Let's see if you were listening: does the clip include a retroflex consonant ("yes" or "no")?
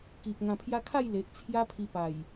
no